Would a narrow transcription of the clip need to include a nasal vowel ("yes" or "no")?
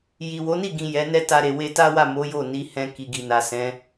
yes